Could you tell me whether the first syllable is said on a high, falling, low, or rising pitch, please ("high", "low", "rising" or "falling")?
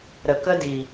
low